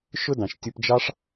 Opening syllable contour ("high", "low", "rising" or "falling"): high